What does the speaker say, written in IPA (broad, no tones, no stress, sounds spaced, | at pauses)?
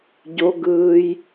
ɟ o ɡ ɯː j